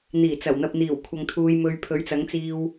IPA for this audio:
n̪iː˨˩t͡sɐ˨˩wn̪ɐ˨p̚ n̪iː˨˩wkʷʰɐ˨ŋ t̪ʰuː˧jmɵ˧ɥ pʰɵ˨˥ɥt͡sɐ˨˥ŋt͡siː˧w

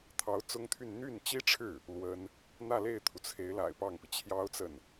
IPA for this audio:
t̪ʰɑ˧˥ʊ̯ t͡sʊ˥ŋt̪ʰy˥˧n n̪y˥˩nt͡ɕi˥ʈ͡ʂʰɻ̩˥˩ | lwə˥n | n̪ä˥˧le˥˩ɪ̯t̪ʰu˩t͡sʰe˧˥ɪ̯ la̰˨˩ɪ̯pɑ˥˩ŋpi˩ t͡ɕʰjɑ˥ʊ̯t͡sə˥˩n

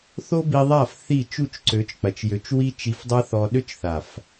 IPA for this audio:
θo˦ bi˧ðˤa˦˨f θi˦˨ t͡ʃu˦˨t͡ʃǀø˨˦t͡ʃk͡pɐ˨t͡ʃjø˨˦t͡ʃ wi˦t͡ʃi˧fdˤa˦θɔ˧ ɗø˦t͡ʃθa˨f

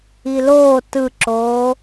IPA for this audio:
iloː tɯǁoː

